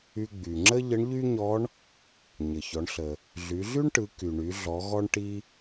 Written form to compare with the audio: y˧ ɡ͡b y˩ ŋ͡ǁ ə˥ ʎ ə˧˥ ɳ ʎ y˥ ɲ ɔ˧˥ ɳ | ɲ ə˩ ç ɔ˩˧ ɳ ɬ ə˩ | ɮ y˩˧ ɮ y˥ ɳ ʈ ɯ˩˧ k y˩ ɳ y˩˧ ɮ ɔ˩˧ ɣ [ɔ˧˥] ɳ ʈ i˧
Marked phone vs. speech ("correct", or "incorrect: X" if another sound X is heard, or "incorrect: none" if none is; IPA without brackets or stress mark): incorrect: ɔ˧